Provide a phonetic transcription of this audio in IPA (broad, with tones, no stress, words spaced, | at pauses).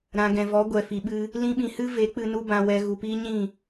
ɾã˨ɡɛ̃˨vɔ˨˦ ɡʷɛ˨fi˨ɓɨ˧ | lĩ˧ɓĩ˨ hɨ˦ve˨˦k͡pɨ˧ nu˧bã˨wɛ˨ ɣu˨piː˦ɲĩ˦˨